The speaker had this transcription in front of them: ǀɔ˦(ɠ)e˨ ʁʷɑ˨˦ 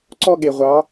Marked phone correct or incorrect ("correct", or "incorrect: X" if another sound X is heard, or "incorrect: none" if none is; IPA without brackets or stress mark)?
correct